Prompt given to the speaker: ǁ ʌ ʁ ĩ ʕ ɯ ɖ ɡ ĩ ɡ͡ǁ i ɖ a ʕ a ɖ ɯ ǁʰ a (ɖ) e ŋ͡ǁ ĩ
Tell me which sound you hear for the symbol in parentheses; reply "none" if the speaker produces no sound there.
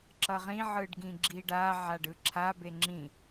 b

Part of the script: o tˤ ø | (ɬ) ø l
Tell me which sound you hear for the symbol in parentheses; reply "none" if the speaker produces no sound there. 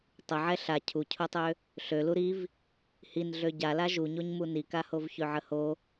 ɬ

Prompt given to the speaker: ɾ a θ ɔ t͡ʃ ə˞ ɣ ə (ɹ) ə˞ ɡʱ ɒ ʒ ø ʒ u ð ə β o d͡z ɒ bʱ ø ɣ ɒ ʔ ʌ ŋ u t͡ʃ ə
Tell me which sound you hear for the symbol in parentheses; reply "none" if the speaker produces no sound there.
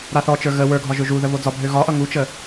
w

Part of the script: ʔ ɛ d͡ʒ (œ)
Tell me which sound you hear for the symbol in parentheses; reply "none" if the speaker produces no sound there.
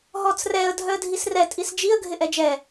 ɛ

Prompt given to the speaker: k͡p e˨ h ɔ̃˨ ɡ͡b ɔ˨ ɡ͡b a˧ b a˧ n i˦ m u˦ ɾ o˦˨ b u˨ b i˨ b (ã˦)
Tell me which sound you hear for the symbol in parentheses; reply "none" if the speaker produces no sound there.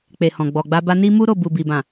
ã˨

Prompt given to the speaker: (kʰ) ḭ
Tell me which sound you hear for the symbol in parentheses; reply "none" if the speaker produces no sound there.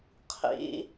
qʰ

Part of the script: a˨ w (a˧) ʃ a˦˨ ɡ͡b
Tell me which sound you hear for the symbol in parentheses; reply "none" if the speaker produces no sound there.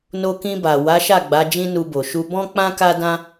a˨˦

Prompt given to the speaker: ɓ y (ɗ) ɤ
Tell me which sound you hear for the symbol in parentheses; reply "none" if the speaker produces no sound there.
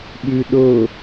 ɗ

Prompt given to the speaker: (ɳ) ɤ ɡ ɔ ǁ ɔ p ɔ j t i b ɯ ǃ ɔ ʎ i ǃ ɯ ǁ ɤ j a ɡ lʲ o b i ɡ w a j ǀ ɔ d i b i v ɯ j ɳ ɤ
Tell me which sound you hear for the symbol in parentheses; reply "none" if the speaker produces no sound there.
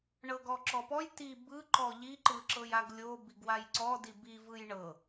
ɳ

